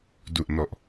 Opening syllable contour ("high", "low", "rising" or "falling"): low